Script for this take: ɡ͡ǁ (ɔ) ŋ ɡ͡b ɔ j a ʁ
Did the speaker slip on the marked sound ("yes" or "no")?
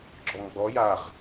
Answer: no